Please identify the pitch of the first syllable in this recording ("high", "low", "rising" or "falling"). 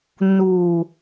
low